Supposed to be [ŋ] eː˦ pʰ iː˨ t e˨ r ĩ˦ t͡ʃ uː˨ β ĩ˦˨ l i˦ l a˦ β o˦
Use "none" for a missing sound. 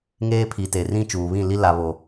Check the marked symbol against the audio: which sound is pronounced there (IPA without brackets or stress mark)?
ŋ